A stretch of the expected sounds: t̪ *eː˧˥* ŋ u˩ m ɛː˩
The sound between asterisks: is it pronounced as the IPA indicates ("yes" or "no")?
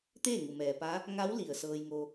no